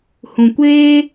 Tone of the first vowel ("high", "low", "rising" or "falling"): low